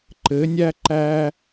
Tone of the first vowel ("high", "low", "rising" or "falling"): rising